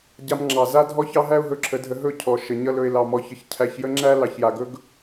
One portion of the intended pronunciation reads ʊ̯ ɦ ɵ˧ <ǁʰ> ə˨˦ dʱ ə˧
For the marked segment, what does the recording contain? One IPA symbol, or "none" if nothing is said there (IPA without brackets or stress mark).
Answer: ǁʰ